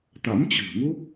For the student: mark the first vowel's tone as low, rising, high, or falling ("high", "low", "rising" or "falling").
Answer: rising